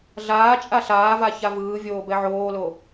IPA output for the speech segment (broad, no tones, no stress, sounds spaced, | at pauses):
ɮ aː t͡ʃʼ a ɬ aː v a ç a v ɯː vʲ oː b ɛ ʕ oː l o